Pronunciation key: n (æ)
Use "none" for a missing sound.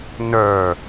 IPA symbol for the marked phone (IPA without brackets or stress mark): œ